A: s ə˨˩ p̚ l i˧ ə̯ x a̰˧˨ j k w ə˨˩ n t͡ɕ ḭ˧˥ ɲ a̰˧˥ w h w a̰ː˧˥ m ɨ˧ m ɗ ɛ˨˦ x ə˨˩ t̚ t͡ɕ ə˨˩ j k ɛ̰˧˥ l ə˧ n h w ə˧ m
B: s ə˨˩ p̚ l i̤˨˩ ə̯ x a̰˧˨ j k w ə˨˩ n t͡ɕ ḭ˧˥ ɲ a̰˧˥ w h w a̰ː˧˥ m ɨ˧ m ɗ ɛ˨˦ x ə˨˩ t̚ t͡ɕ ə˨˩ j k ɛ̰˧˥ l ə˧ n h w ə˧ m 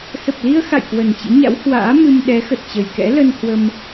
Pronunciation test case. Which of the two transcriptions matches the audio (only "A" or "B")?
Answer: A